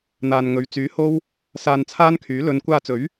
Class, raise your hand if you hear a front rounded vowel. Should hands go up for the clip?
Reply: yes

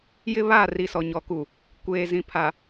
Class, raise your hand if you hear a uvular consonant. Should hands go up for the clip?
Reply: no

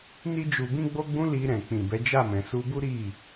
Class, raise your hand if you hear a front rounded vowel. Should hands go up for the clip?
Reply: no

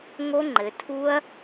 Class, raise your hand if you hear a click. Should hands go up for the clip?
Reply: yes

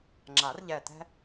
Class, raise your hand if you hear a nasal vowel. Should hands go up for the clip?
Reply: no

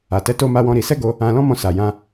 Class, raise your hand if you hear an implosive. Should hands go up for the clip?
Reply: no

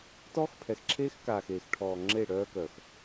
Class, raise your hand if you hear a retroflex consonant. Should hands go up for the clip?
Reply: yes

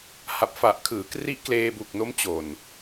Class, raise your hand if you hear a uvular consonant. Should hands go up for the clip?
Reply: no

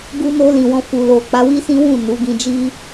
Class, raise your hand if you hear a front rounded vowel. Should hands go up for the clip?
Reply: no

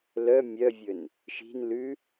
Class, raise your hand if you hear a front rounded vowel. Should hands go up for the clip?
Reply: yes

